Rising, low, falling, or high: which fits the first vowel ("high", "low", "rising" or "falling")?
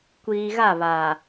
low